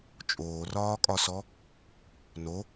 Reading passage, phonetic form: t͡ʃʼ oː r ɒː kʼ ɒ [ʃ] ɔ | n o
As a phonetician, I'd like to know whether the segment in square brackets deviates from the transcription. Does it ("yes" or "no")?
yes